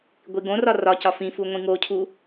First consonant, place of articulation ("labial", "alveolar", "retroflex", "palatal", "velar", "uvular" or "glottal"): velar